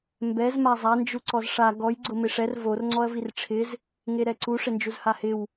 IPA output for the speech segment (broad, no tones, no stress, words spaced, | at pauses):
mbɛz mazˤa nd͡ʒuǀɔzʂa ɡɔj ɡ͡ǀʊmɪʂɛr vor ŋ͡ǀɔɐ̯virʈ͡ʂʰɪz | ŋeɾɛǀu ʂɪnd͡ʒuzhahɪw